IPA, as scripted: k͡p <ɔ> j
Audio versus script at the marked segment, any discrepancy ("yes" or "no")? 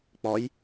no